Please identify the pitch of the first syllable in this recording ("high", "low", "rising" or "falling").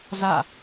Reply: falling